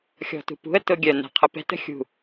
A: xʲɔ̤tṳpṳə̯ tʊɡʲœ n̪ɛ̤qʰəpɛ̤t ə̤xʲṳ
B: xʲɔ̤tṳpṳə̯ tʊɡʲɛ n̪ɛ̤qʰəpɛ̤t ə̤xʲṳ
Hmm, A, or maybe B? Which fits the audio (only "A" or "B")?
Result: A